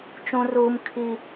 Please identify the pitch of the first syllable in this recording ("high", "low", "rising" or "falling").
high